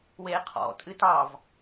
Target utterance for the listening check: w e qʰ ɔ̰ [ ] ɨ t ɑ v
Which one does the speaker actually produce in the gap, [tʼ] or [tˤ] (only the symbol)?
tʼ